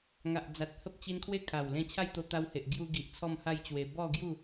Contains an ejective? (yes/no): no